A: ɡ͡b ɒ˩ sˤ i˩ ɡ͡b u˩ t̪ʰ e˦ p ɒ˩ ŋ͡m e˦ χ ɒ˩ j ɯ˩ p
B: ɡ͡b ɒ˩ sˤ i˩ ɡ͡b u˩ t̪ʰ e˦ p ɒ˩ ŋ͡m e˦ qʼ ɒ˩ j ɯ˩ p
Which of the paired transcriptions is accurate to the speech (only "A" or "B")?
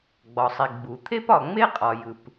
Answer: B